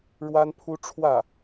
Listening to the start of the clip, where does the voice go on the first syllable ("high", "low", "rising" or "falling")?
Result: high